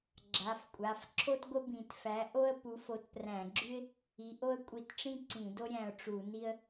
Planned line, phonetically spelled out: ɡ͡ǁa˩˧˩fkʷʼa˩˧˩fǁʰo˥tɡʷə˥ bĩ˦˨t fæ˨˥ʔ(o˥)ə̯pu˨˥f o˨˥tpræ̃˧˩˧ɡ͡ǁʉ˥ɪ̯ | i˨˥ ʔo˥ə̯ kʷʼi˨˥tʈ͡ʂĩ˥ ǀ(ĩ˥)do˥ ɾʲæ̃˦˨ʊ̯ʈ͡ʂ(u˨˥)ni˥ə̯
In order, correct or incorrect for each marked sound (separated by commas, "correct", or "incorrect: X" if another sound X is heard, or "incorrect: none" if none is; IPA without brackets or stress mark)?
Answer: correct, incorrect: ĩ˧˩˧, incorrect: u˧˩˧